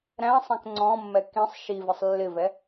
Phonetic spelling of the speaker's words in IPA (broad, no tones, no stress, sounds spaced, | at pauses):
ɾ æ̃ sˤ ɛ̃ k ŋ͡ǀ ɔ̃ mː ɛ k ĩ sˤ ʃ i v ɪ sˤ lː ɪ v ɛ